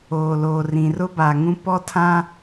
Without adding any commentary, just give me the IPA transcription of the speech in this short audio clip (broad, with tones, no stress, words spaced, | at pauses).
oː˨loː˨rĩ˨ rʊ˦ba˨ŋũ˦ pɔ˦tʰã˦